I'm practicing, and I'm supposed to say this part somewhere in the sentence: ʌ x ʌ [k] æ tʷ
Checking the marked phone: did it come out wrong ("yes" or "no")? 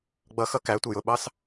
no